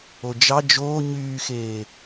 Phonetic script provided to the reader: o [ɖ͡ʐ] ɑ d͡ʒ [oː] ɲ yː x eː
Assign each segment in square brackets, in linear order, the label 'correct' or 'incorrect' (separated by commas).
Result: incorrect, correct